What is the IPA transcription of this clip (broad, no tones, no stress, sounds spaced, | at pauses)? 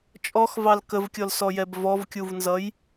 t͡ʃʼ ɔ x v ɑ l k ə v kʲ ɔ l s ɔ j ɛ b v ɔ v kʲ u v n z ʌ j